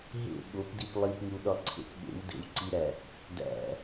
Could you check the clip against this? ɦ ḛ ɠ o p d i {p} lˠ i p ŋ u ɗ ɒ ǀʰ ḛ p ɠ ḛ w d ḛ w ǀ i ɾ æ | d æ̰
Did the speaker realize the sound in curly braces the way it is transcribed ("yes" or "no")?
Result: yes